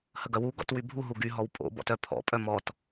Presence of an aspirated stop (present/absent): present